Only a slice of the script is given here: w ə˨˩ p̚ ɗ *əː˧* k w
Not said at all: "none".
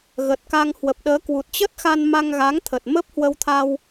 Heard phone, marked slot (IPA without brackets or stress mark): əː˨˦